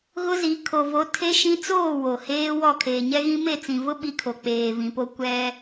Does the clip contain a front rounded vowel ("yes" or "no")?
no